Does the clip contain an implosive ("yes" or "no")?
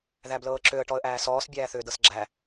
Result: no